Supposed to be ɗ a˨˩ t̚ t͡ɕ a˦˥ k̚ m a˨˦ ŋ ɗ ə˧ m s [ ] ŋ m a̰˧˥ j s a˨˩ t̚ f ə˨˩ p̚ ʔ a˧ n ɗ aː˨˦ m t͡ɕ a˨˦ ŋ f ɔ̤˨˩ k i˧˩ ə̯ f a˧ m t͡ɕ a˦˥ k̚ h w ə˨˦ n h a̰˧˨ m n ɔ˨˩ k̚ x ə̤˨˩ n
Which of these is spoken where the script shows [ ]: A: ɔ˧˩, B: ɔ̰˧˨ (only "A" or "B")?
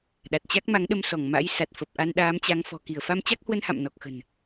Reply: A